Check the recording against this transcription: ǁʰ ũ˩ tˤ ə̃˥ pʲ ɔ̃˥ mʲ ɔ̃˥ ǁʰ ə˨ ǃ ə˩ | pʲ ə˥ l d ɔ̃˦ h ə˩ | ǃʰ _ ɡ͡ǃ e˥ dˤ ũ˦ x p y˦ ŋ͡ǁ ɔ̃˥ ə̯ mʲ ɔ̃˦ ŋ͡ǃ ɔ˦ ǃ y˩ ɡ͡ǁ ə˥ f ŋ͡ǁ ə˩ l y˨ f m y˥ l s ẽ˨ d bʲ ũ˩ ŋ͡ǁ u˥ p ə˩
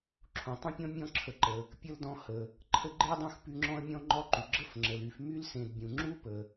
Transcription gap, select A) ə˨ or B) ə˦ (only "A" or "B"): B